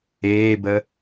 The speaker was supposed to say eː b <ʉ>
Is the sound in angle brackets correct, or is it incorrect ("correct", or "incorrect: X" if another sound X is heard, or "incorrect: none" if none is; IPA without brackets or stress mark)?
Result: incorrect: ə